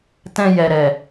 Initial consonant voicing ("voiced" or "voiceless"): voiceless